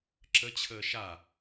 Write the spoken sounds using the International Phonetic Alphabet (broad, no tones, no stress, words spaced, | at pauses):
ǁət͡ɕʰəː ʃa